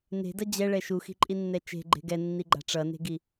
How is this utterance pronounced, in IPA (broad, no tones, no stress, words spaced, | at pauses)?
ne̤dʌ d͡ʑɛɭɛ ʃuxi̤ǃʼinːɛ t͡ʃe̤ɡ͡ǃe̤ ɡɛnːiɡ͡ǃa̤ ʈ͡ʂʌne̤ɡi